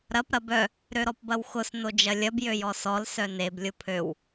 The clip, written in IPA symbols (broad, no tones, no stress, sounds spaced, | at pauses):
ɾ ɐ p ɾ ɐ b œ | ɾ ø ɾ ɔ p b ɐ w x ʊ s n o d͡ʒ ɐ lʲ ɐ b j ø j ɔ s ɔ l s œ n e b lʲ ʊ pʰ ø w